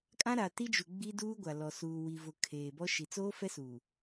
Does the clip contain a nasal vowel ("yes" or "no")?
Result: yes